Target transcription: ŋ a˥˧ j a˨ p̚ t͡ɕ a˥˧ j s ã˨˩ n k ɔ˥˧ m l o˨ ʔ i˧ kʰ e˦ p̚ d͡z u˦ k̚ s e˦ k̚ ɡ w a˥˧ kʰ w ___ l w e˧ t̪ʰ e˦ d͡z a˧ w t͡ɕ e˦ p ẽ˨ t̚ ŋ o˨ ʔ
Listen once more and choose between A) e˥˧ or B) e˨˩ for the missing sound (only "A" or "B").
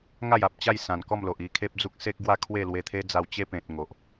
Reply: A